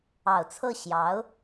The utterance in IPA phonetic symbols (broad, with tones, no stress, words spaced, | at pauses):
ɑ˨˩ʊ̯t͡sʰɤ˥˩ ɕjɑ˧˥ʊ̯